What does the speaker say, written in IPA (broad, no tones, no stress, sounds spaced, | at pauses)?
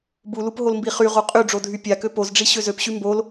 b u l u p ɦ o l m b i χ y ʁ o qʼ y ɖ͡ʐ o dʱ y pʲ a k ø p o z ɖ͡ʐ i ɕ ø z ø p ɕ y m b o l